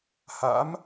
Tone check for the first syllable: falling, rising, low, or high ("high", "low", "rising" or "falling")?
rising